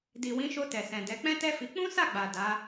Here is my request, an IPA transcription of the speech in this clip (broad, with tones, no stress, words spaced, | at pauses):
di˨wĩ˨˦ʃo˧ tɛ˨sɛ̃˨dɛ˨˦ k͡pɛ̃˦tɛ˦fi˧ k͡pũ˦sa˦˨ɡ͡ba˨ da˨˦